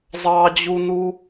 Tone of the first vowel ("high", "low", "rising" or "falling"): high